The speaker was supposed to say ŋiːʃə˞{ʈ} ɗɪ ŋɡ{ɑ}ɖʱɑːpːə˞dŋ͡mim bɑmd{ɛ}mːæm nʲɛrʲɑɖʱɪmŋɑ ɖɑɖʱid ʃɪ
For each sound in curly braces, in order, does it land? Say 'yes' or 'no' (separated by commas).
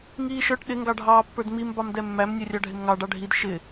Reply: yes, yes, yes